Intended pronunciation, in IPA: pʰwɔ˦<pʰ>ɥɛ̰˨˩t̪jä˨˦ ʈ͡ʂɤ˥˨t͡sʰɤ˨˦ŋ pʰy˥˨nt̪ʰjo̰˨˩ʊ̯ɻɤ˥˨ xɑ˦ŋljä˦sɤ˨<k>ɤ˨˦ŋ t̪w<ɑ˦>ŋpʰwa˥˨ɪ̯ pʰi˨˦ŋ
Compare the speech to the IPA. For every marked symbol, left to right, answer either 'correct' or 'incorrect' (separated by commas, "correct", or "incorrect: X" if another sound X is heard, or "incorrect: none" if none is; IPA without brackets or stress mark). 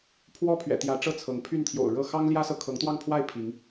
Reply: correct, incorrect: kʰ, incorrect: ɑ˥˨